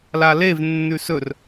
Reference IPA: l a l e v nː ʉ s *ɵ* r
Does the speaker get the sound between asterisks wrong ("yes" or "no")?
no